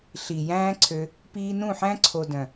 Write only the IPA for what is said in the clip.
ɬ i˨ j æ̃ː˦ ǀʰ ø˧ | p iː˦ n ũ˦˨ ħ æ̃˦ ǀʰ o˨ d œ̃˨

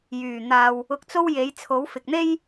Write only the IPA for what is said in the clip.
j yː˨˩ n̪ aː˨ w | ʊ˧ k̚ t͡s o˥ w j e˨˥ j t͡sʰ o˨˥ w f ɪ˨ k̚ n̪ e˥ j

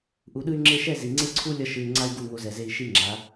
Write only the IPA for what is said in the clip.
ʔ u˨ ɗ ɯ˧ y̯ ŋ͡ǁ e˧ ʃ ɛ˦˨ z i˨ ŋ͡ǀ e˦ ǀʰ u˦ lʲ ʌ˧ ʃ ɯ˨ y̯ ŋ͡ǀ a˧ y̯ ɡ u˦˨ ŋ o˧ z ɛ˨ z e˧ i̯ ʃ i˧ ŋ͡ǁ a˨˦

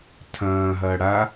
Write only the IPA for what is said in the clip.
tʰ ɐ̃ː ɦ ɐː ɽ a

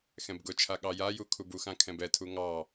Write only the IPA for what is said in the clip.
x ɛ̃ b ɡ ʊ t͡ʃʰ a ɠ ɑ j a j u kʰ u b u x ã kʰ ɛ̃ b ɛ tʰ u ŋ ɑ

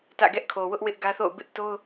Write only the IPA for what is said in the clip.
t ä̰˦˨ ɡ ɛ˦ ʔ kʰ o˨ w ʊ˦ ʔ w ɪ˦ ʔ ɡ ä˦ θ o̰˦˨ ʊ̯ b ɪ˦ ʔ t o˦ ʊ̯

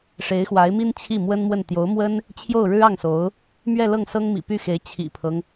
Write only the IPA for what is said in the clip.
ʂ e˧˥ ɪ̯ x w a˧˥ ɪ̯ m i˥ n t͡ɕʰ i˥˩ m w ə˥ n m w ə˥˩ n t̪ j o˧˥ ʊ̯ m w ə˥ n | t͡ɕʰ j o˥˩ ʊ̯ ɻ ɻ̩˥ ɑ˥˩ ŋ s o˧˥ ʊ̯ | m ɥ ɛ˥˧ l ɤ˥˩ ŋ s ɤ˥ ŋ m ḭ˨˩ p y˥˩ x e˧˥ ɪ̯ t͡ɕʰ ḭ˨˩ pʰ ɤ˦ ŋ

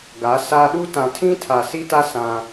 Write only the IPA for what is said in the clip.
ɡ a˨˦ s aː˦ ɗ u˦ t ã˨ tʰ ĩ˦ tʰ a˨ s i˦ t a˦ s ã˦

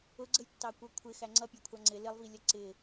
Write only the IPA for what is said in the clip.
ʊ ɡ͡ǀ ə j tː ɑ kʷ ə˞ kʷʰ ɪ x æ ŋ͡ǀ ʌ pʲ ɑ kʷʰ ɑ ŋ͡ǀ ɪ l ɪ lˠ v i lʲ ʌ ǀ ɪ

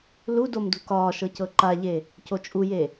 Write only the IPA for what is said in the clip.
l u d o m d ṳ k ɒː ʃ ɤ c ɤ ǃ a ʎ e | c o t͡ʃʼ u j e

